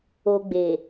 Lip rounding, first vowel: rounded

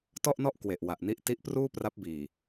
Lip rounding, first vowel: rounded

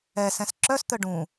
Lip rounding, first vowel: unrounded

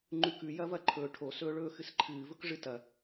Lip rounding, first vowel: rounded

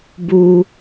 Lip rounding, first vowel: rounded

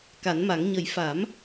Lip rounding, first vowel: unrounded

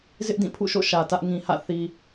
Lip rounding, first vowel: unrounded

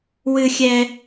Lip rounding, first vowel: unrounded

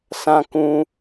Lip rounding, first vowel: unrounded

